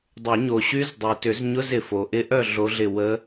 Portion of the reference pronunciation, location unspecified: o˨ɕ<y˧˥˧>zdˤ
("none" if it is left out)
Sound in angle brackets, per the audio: y˦˥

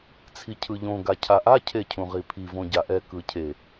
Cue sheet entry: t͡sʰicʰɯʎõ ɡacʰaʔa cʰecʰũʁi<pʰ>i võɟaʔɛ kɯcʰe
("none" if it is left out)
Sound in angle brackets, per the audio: pʰ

